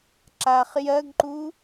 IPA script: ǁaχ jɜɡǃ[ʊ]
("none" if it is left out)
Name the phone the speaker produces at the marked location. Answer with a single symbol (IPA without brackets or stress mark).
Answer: u